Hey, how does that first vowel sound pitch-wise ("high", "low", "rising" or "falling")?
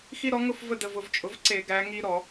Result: high